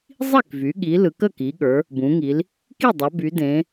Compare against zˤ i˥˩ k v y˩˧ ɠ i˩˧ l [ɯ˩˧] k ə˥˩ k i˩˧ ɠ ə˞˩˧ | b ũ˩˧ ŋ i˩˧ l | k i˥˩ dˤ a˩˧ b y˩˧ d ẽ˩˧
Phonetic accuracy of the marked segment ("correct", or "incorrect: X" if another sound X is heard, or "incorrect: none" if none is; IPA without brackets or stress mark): correct